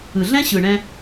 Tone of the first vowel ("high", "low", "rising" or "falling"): low